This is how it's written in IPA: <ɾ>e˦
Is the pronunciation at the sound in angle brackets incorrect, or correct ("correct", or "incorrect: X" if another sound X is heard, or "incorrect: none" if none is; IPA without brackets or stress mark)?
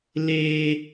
incorrect: l